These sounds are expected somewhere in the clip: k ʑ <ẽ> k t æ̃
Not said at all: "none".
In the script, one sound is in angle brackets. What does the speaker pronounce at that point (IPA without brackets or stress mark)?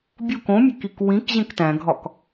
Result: ẽ